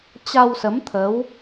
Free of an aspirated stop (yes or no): no